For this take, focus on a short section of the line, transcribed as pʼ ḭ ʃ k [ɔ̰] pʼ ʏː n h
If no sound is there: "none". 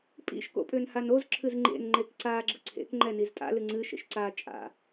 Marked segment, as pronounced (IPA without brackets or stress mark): o̰